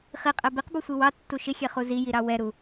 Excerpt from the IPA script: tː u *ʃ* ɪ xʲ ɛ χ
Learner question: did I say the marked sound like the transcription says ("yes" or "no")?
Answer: yes